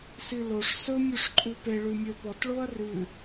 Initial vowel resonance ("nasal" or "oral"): oral